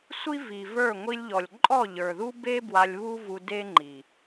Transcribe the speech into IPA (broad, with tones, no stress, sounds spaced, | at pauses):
sʷ i˦ v i˨ v ə˞˦˨ ŋʷ i˧ lʲ ʎ ɔ˨ lʲ ǃʼ ɔ˦˨ ʎ ə˞˨ ð u˦ b e˦ b w a˧ lʲ β u˦ v u˧ d e˦ ŋ͡ǃ i˨